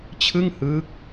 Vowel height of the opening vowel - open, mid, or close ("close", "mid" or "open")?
close